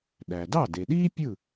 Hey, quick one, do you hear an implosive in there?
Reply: yes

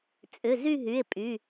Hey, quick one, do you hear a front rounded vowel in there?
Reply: yes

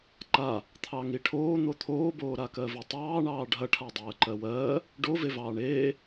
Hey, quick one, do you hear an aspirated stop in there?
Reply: yes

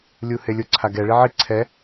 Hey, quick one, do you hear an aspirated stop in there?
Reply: yes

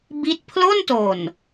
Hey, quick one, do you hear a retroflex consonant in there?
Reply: no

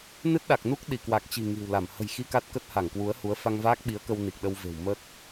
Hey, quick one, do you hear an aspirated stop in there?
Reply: no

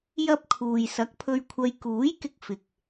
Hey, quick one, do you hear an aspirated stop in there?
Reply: yes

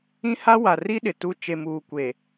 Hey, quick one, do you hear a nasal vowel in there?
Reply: yes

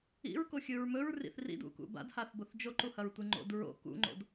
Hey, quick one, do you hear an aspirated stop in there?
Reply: no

